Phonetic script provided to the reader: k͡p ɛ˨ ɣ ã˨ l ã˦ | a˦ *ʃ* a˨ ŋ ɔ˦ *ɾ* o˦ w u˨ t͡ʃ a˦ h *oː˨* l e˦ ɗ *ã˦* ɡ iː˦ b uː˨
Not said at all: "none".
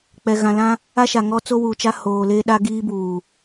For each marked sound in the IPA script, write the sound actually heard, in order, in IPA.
ʃ, t͡s, oː˨, a˦

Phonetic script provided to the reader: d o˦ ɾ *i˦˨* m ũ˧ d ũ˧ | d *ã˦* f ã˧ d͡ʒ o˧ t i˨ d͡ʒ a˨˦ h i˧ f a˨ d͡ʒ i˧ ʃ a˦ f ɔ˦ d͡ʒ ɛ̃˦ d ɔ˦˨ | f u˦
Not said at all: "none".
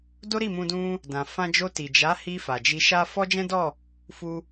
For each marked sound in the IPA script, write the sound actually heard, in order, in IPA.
i˦˨, ã˨

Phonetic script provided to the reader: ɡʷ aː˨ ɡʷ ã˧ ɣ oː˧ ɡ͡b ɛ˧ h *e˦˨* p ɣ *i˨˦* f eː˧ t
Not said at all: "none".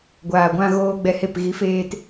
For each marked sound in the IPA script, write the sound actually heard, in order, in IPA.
e˦˨, i˨˦

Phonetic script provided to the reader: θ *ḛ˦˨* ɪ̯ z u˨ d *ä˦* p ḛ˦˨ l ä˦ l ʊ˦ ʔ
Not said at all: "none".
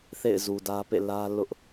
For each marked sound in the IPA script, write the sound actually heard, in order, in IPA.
ḛ˦˨, ä˦

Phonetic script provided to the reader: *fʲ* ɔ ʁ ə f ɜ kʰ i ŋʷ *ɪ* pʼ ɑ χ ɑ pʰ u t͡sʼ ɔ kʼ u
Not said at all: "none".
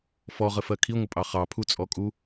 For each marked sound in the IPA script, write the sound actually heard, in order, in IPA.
f, ə

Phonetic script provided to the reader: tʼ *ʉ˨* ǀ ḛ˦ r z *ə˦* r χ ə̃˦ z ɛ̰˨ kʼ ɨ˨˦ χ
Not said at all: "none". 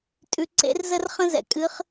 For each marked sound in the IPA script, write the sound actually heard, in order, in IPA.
ʉ˨, ə˦

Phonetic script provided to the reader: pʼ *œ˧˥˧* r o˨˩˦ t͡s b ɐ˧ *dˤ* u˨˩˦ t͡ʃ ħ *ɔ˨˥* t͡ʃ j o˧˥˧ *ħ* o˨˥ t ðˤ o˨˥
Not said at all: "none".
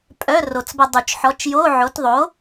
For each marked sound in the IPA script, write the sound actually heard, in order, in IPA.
œ˧˥˧, dˤ, ɔ˨˥, ʕ

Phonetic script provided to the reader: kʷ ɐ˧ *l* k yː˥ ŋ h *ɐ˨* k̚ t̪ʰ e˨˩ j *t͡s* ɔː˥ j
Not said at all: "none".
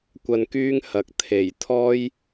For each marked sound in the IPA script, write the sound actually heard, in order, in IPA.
n, ɐ˨, t̪ʰ

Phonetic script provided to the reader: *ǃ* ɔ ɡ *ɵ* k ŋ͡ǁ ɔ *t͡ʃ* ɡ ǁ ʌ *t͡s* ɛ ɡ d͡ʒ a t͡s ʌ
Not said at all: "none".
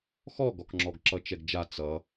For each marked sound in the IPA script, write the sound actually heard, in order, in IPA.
x, ɔ, none, t͡ʃ

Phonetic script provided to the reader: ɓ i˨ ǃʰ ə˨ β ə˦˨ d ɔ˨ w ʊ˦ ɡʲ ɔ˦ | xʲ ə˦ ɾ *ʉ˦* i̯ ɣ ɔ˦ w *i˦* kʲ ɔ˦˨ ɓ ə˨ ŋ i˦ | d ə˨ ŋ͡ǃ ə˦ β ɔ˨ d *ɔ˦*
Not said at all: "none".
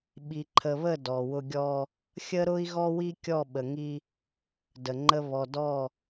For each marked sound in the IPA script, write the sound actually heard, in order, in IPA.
ʊ˦, i˦, ɔ˦˨

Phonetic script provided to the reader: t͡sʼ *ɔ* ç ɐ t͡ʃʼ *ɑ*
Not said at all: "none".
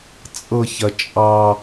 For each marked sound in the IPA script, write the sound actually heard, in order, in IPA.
ɤ, ɑ

